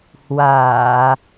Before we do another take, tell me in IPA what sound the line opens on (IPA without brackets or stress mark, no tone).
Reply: h